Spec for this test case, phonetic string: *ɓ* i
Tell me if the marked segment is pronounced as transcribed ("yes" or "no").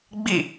no